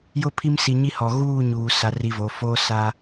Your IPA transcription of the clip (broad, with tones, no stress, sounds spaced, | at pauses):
j ʊ˦ pʰ i˦ m s i˨ ɲ i˦ h ɔ˨ ɣ uː˦˨ ɲ uː˨ s a˦ r i˦ v o˨˦ f oː˦ s a˦